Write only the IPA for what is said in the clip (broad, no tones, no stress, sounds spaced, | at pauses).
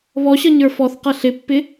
β ɔ ɕ ʌ ɲ ə˞ f ɔ θ q ʌ ɬ ɪ pː ɪ